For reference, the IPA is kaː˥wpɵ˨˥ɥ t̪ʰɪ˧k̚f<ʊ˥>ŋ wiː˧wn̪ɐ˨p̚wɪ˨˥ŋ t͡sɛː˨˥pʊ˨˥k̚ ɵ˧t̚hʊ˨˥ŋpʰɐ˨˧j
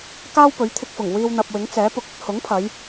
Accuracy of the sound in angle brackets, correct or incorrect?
incorrect